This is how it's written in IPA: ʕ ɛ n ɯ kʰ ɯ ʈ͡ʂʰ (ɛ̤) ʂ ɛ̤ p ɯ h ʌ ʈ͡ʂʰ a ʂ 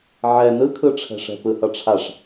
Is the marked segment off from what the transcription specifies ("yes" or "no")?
no